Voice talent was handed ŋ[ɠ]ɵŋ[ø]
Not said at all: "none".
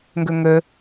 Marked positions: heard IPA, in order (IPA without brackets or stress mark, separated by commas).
ɡ, ɵ